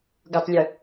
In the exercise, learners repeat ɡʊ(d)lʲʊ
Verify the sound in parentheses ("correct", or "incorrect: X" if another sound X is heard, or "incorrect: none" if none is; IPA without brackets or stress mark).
incorrect: tˤ